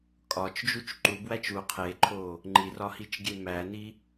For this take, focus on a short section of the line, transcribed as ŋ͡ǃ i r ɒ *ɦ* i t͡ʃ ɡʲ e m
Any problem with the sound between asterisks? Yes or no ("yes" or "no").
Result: yes